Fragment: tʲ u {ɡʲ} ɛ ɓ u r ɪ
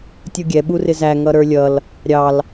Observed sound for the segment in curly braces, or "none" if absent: ɡʲ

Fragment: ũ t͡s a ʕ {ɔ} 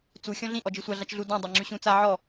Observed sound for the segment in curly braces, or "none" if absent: ɔ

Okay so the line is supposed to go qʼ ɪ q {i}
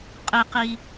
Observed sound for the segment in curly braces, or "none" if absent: i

